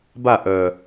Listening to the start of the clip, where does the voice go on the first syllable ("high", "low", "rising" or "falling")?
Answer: falling